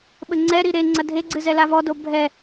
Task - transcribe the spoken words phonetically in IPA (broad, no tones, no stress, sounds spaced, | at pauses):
ɓ ɘ ŋ͡ǀ ɛ ɾ i ɾ e ŋ͡ǀ ɐ dʱ e ɡ͡ǀ ɨ z ɛ l a v ɔ d o bʱ ɛ